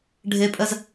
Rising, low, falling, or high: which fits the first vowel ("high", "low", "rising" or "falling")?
high